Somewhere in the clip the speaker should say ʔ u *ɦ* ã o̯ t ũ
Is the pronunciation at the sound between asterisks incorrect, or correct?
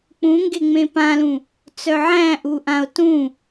incorrect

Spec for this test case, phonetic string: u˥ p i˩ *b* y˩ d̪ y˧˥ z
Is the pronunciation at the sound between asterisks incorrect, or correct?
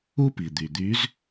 incorrect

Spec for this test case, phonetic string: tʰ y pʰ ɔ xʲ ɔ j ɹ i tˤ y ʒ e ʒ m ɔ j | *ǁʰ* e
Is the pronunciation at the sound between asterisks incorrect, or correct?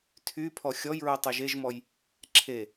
correct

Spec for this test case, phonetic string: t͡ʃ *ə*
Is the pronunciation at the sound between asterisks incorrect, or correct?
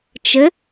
correct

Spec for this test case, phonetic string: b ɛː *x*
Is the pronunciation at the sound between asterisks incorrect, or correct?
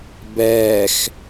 correct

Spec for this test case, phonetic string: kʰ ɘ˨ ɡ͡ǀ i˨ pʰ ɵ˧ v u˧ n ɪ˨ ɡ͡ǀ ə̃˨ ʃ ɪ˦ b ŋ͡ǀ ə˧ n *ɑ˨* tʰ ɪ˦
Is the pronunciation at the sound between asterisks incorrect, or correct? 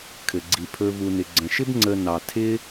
correct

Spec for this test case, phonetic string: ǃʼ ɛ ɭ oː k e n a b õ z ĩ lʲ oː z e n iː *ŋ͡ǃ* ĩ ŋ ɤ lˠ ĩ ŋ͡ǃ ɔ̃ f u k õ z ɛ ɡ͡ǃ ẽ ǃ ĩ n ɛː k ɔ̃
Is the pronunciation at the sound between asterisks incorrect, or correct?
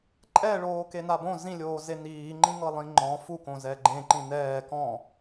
correct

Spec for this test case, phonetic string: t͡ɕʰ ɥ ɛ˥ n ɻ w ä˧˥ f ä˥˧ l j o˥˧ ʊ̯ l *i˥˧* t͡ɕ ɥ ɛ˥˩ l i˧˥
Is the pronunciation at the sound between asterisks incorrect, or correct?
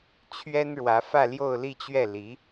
correct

